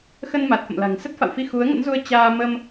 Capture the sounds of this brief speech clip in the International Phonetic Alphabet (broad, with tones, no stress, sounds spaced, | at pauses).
x ə˧ n m a˨˩ t̚ f ə̰˧˨ m l a̤˨˩ ŋ s ə˦˥ t̚ f a̰˧˨ w f i˧ x u˨˦ ə̯ ŋ ə̰˧˥ n z u˧ ə̯ t͡ɕ aː˧ m ə˧ m